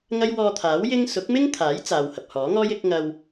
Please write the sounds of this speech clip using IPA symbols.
ŋ ɐ˥ j w ɔː˧ t̪ʰ aː˨˥ w j ɪ˥ ŋ s ʊ˨˥ k̚ m ɪ˥ ŋ t̪ʰ aː˨˥ j t͡s aː˨ w h ɐ˨ p̚ h ɔː˨˥ ŋ ɔː˥ j ɪ˨˥ k̚ ŋ ɐ˧ w

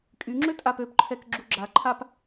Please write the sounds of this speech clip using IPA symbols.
kʼ y ŋ͡ǁ ø tʼ a p ø p ǃʰ ɛ k ɡ͡ǁ u ɡ͡ǁ a ǃʰ a p

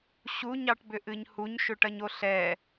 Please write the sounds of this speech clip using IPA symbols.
ɕ u ɲ ɑ ʈ b ʏ ʔ ɨ ɲ h u ɲ ʃ ʏ ʈ ɐ ɲ o ɬ ɛ

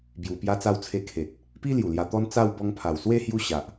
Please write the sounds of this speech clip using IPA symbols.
b j u˨˩ p j a˧ t͡s a˧ w t͡sʰ e˧ kʰ e˨ t̚ | p i˦ l j u˨˩ l j a˧ t̪ ɔ˦ n t͡s a˥˧ w b ɔ˧ ŋ pʰ a˨˩ w s w e˥˧ h j u˥˧ ɕ a˨ ʔ

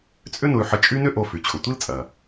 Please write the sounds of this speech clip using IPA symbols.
t͡sʼ ʏ˥ n ʊ˧ y̯ ħ ə˧ t͡ʃʼ y˥ n ʏ˥ ʔ o˧ f y˩ t͡ɕʰ ʊ˩ tʷ i˥ l t͡sʼ ɐ˩

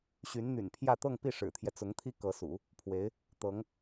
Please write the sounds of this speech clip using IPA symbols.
ɕ y˧˥ n n̪ y̰˨˩ n pʰ j ä˥˧ t̪ ɤ˥˧ ŋ p i˥˩ ʂ ɻ̩˨˩ t̪ʰ j ɛ˦ t͡s ʊ˧˥ ŋ t̪ʰ i˥ k ɤ˧˥ s ṵ˨˩˦ | pʰ w e˧˥ ɪ̯ | t̪ ɤ˧˥ ŋ

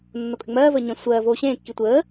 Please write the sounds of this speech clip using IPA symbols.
nː o kʼ ʏ ŋ͡m ɜː v əː ɲ ə̃ sʷ ɜː v oː ɕ ẽː kː i tʷ əː

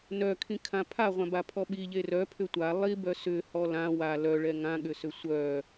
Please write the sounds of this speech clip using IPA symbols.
n œ kʰ ĩ kʰ ã pʰ a ʁʷ ã b a pʰ ɔ ɓ i ʎ e r œ pʰ ʏ tʷ a lˠ i b œ s ʏ h ɔ l ã w a l œ ɭ ɛ ŋ ã ɠ ʏ s ʏ sʷ œ

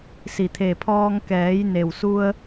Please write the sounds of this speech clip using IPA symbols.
s i˩ t̪ʰ e˩ pʰ ɔː˧ ŋ k ɛː˩˧ j n e˩ w s u˧ ə̯

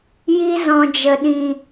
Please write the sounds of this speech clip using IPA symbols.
j i˧ z ɔ̃˨ d͡ʒ ə˨ ɗ ĩ˨

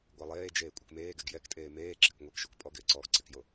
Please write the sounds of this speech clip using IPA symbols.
ɡʷ ɛ lˠ eː d͡ʒ eː kʷʼ ɪ k m eː ɡ ɛ ɡ j ɛ k tʼ eː m eː ǁ ɪ k ŋʷ e k ʃ o k pʼ ɔ ɡ ɪː ǀ ɔː ɡ ǀ ɪ k j o

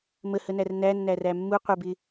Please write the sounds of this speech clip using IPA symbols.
m ə h ə n æ r n æ nː æ r æ mː u qʷ ɪ b ɪ

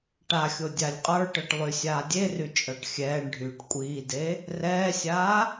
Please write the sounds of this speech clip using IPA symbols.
ʈ a xʲ o dʲ a lʲ qʼ ə˞ ʈ ɤ ʈ lˠ y sʲ aː dʲ e r y t͡ʃʼ ɤ ʈ xʲ ɛː ɳ ɖʱ yː ʈ kʷʼ iː d e | r ɛː sʲ aː

